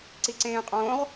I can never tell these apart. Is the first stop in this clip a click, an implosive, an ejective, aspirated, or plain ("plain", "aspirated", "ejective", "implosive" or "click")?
click